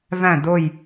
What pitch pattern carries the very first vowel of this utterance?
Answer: falling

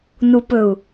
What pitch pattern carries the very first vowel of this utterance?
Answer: low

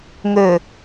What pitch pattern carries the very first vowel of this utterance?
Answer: low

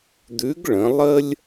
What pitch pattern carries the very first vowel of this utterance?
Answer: rising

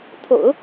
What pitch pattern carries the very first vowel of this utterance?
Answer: low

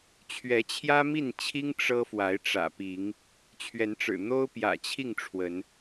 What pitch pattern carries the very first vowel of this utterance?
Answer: rising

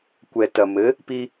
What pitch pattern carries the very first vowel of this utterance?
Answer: low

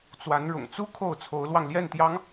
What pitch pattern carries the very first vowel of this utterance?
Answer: rising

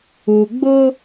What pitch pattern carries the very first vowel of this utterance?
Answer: low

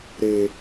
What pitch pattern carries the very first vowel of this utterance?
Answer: low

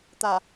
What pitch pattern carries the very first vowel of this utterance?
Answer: low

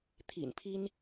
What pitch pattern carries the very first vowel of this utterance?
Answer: low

